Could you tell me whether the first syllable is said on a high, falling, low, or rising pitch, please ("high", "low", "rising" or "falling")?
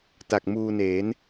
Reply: low